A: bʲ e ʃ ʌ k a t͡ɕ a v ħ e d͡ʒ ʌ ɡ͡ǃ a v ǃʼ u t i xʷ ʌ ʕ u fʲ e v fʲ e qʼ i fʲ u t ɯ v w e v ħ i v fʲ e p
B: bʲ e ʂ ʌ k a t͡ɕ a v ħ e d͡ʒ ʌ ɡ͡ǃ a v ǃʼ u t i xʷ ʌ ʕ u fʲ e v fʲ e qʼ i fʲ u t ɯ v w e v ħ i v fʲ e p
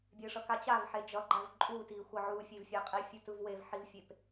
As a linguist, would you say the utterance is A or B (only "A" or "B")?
B